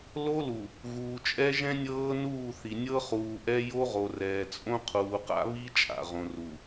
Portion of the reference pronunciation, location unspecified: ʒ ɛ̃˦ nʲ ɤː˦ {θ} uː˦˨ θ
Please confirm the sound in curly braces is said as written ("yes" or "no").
no